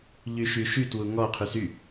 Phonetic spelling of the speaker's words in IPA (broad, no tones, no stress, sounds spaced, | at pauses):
ʎ y ʃ y ʃ y t w u ŋ ɔ qʰ y s y